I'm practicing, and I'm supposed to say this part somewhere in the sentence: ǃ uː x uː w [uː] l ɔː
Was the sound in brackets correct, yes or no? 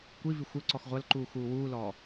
yes